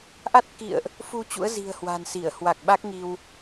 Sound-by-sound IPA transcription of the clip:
ʔ a˦˥ t̚ k ḭ˧˨ ə̯ ʔ | f u˧ t͡ɕ ṵ˧˥ ə̯ z i̤˨˩ ə̯ h w a̤˨˩ n s i˧˩ ə̯ h w a˨˩ k̚ ɓ a˦˥ k̚ ŋ i˧ w

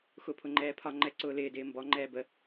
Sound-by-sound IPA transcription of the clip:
x ʊ pʰ ʊ ŋ͡ǃ ɛː pʰ ɒ ŋ͡ǃ ɛ ǀ ʊː l ɪː d ɪː m b ɔ ŋ͡ǃ ɛː b ə

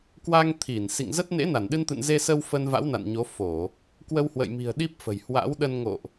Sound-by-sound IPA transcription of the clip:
k w a˧ ŋ t̪ʰ i˧˩ n s ḭ˧˨ ŋ z ə˦˥ t̚ n ḛ˧˥ n a˧˩ n ɗ ɨ˧ n t̪ ɨ̰˧˨ n z e˧ s ə˧ w f ə˧ n v a̰˧˥ w n a̰˧˨ n ɲ o˨˦ f o˧˩˨ | k w ə˧ w h w ə̰˧˨ j m i̤˨˩ ə̯ ɗ i˦˥ p̚ f ə̤˨˩ j h w a̰˧˥ w ɗ ə˧ n ŋ o̰˧˨ ʔ

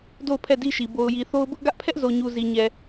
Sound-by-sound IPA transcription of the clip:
d o˦˨ ʊ̯ pʰ ɛ˦˨ d i˦ ʃ i˨ b o˨ ʊ̯ j i˨ θ o˦ ʊ̯ b ʊ˦ ʔ ɡ ä˦ ʔ pʰ ɛ˦ ʔ z o˨ ɲ u˨ z i˨ ɲ ɛ˨

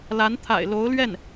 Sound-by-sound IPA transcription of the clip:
l a˧˥ n t̪ʰ a̰˨˩ ɪ̯ l o˧˥ ʊ̯ l ɥ ɛ˥˩ n

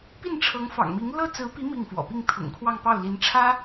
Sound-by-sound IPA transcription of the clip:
p i˥˩ n ʈ͡ʂʰ ɤ˧˥ ŋ f ɑ̰˨˩ ŋ m i˧˥ ŋ l ɤ˥ t͡s ɹ̩˧˥ p i˧˥ m i˥˩ ŋ f w ɔ̰˨˩ p i˥˩ ŋ t̪ʰ ʊ̰˨˩ ŋ kʰ w ɑ˥˧ ŋ p ɑ˥˩ ʊ̯ l i˧˥ n ʈ͡ʂʰ ä˥

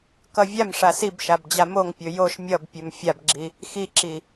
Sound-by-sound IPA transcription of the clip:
k ʌ vʲ a m ʂ a s i b ʃ a b d͡ʑ a m o ŋ pʲ ɵ j o ʃ mʲ ʌ b pʲ ɵ m fʲ a b ɡ͡ǁ i | x i ǁ i

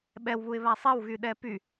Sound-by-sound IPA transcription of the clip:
ɓ ɛ w β u ɪ̯ β a sˤ ɛ w ɣ y ɗ ɛ p y

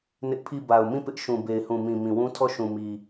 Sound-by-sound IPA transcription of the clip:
n ɪ˦ ʔ pʰ i˦˨ b a˨ ʊ̯ m ĩ˦˨ p ɪ˦ ʔ ʃ ũ˨ b e˨ ɪ̯ h ũ˨ m ĩ˨ m ĩ˨ w ũ˦ tʰ ɔ˦˨ ʃ ũ˨ m i˨

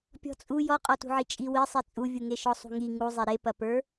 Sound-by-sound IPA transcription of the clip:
pʲ ɔ̤ t͡sʼ u j ɔ qʼ ɔ t ṳ ʕ i t͡ʃʼ i w i sˤ i t͡sʼ u vʲ u ŋ e ʃ ɔ sˤ ṳ ŋ i ŋ u zˤ e ɾ e p ɐ p ə˞

